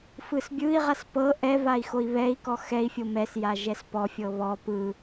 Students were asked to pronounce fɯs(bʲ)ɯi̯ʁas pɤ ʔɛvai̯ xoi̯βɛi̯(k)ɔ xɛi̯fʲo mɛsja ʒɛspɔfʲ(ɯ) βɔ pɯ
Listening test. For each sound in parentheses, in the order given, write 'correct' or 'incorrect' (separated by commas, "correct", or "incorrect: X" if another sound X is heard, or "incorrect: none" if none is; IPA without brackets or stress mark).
correct, correct, incorrect: ɤ